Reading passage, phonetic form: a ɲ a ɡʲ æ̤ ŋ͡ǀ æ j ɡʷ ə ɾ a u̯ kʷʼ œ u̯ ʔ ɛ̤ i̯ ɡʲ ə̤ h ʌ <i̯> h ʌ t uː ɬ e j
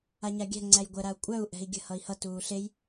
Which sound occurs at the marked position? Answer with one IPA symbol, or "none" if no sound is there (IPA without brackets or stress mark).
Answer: i̯